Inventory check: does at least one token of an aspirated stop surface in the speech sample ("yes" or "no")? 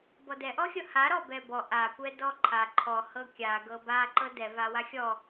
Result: yes